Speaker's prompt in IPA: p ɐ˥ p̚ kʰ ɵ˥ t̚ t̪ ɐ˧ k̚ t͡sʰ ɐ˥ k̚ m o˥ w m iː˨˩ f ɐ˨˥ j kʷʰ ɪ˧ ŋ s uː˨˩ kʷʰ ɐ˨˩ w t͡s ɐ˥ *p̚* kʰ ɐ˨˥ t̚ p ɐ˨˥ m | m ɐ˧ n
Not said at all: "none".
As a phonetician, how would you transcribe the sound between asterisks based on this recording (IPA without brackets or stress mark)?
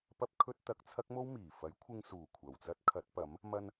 t̚